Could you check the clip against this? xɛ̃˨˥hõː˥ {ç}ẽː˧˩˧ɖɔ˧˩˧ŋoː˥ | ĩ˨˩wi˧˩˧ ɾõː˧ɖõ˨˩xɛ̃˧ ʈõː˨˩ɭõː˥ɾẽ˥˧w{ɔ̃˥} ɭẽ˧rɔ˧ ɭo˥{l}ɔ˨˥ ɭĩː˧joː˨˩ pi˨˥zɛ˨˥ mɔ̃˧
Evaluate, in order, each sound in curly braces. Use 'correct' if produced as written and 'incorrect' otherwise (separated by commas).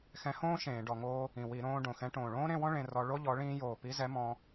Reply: incorrect, correct, incorrect